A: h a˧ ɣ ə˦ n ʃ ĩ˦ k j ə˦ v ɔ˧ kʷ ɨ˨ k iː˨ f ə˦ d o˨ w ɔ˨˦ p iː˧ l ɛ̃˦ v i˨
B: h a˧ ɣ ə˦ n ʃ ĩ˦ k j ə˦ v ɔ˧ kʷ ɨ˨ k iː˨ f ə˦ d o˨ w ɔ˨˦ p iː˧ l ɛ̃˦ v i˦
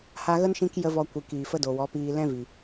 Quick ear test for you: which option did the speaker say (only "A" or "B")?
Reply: A